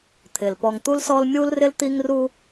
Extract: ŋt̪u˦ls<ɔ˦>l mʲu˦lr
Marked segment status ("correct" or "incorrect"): correct